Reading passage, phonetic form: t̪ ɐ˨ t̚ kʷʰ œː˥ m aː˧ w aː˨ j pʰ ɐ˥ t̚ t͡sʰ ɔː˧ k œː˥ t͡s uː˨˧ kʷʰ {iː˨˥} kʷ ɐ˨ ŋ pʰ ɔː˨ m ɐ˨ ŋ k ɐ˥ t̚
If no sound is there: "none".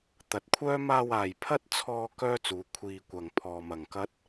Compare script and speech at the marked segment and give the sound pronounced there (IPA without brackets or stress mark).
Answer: iː˧